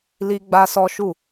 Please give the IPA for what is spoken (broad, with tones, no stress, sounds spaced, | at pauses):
l i˦ ɡ͡b a˦ s ɔ˦ ʃ u˦˨